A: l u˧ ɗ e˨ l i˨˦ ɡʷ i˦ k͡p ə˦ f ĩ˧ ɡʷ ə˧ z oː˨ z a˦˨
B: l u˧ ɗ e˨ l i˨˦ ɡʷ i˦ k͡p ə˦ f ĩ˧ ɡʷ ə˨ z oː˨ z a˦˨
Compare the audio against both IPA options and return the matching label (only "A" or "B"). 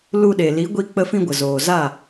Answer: B